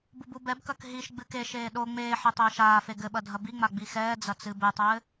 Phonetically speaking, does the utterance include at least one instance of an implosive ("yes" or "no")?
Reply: yes